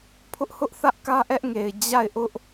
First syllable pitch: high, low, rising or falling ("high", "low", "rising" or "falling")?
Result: high